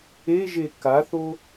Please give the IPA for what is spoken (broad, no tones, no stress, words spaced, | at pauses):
eʒe kaθo